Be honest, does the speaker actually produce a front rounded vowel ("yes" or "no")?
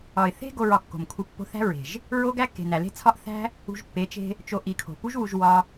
no